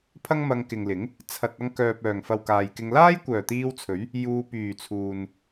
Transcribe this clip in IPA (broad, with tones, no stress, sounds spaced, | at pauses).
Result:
pʰ ɐ˥ ŋ m ɐ˧ ŋ k ɪ˨ ŋ l ɪ˨˥ ŋ | t͡sʰ ɐ˧ t̚ ɐ˧ ŋ k œː˨ p̚ œː˨˩ ŋ f ɐ˨ w k aː˨ j k ɪ˧ ŋ l aː˥ j kʷ œː˨˩ t̪ iː˧ w t͡sʰ ɵ˨˥ ɥ | j uː˧ p yː˨˩ t͡sʰ uː˨ n